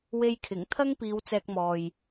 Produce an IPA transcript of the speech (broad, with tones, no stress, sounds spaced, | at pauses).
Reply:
w e˧ j kʰ ɪ˨˩ ŋ t̪ʰ ɐ˥ ŋ p iː˨˧ w t͡s ɛː˧ k̚ m ɔː˨ j